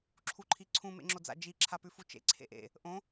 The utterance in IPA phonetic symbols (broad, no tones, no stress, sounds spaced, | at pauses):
ǁʰ u ǃʰ i ǀʰ ũ m ḛ ŋ͡ǁ o d͡z a̰ d͡ʒ i ǁʰ a p ʉ f u t͡ʃ ḛ ǀʰ ḛ ʔ ḛ | ʔ õ